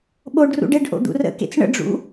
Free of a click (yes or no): yes